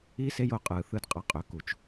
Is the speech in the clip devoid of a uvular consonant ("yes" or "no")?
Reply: no